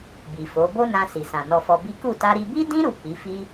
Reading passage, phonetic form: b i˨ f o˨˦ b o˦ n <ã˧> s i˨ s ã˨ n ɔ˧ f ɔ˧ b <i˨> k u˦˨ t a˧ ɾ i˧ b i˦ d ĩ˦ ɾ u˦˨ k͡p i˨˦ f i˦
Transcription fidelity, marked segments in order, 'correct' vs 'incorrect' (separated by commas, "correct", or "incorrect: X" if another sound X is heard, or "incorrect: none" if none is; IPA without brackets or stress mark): correct, incorrect: i˦